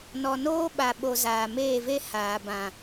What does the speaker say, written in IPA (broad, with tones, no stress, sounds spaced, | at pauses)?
n ɔ˨ n oː˦ ɓ a˨ ɓ o˨ z aː˨ m eː˦˨ v e˦ h aː˨ b ã˨